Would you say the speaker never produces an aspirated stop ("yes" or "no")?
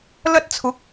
no